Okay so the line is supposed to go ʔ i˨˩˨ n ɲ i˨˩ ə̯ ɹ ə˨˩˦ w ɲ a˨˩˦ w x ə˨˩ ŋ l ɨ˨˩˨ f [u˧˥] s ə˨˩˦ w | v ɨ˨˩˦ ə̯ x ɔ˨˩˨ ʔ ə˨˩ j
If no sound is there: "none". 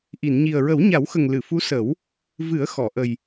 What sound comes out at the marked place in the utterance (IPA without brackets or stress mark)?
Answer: u˧˥